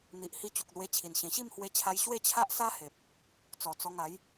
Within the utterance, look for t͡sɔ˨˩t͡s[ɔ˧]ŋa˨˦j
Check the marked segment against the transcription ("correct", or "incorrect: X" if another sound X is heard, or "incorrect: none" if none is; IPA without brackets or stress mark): correct